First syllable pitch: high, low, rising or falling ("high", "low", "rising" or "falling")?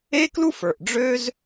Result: high